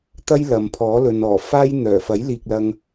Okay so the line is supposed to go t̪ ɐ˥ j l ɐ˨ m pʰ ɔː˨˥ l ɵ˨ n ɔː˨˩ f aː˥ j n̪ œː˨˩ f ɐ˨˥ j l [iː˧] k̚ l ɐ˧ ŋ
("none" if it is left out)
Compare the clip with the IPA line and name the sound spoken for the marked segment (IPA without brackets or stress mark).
iː˨